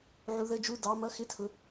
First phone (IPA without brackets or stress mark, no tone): ʕ